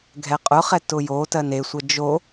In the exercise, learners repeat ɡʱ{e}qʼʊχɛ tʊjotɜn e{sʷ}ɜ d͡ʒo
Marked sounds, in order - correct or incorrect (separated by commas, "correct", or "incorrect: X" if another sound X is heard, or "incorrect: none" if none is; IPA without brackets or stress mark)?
incorrect: ɛ, correct